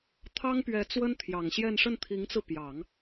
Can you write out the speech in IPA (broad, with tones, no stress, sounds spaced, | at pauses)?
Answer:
t̪ʰ ɑ˥ ŋ p ɥ ɛ˧˥ t͡s w ə˥ n t̪ʰ j ɑ˨˩ ŋ ɕ j ɛ˥˧ n ʂ ə˥˩ n t̪ʰ i˧˥ ŋ t͡s ɹ̩˧ p j ɑ˨˩˦ ŋ